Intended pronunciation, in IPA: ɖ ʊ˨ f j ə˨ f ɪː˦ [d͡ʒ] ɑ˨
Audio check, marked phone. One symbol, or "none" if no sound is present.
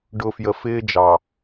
d͡ʒ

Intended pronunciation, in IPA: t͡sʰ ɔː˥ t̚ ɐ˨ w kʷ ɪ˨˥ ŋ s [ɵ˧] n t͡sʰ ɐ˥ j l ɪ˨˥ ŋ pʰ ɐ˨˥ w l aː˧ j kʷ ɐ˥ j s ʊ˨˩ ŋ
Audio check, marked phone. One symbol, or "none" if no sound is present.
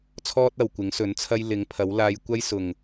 ɵ˨˥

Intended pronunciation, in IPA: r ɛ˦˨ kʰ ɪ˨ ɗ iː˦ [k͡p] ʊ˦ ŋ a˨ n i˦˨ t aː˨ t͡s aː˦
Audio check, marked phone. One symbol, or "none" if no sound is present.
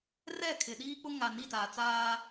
k͡p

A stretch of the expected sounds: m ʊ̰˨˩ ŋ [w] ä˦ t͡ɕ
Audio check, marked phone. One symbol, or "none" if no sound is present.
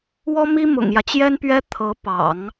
j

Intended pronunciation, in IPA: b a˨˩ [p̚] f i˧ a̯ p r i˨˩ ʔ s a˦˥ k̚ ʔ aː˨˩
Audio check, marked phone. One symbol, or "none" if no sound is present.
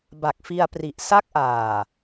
k̚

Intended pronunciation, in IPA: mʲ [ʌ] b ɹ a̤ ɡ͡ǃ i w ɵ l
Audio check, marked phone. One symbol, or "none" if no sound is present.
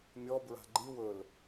ɔ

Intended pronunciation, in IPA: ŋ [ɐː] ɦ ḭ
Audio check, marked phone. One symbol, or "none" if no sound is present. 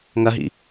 ɐ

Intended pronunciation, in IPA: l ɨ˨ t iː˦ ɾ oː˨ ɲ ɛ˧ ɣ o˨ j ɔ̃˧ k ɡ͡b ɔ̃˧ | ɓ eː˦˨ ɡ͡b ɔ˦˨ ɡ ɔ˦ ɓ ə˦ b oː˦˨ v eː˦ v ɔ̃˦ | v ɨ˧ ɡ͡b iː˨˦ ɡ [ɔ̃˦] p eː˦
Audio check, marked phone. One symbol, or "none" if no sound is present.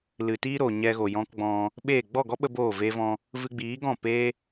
ɔ̃˦˨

